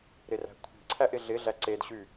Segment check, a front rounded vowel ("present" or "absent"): present